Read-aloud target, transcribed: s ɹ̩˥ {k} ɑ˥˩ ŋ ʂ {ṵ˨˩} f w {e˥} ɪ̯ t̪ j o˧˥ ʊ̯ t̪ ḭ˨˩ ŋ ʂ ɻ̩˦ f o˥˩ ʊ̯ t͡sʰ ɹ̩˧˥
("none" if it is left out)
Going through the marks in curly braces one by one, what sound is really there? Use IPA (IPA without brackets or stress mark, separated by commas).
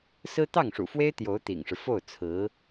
t̪, ṵ˨˩, e˥